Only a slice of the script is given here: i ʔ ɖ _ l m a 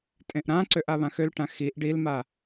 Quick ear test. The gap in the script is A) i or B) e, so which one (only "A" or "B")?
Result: A